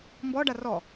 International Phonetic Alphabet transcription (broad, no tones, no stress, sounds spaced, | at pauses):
m b ɔ ɖ a r ɔ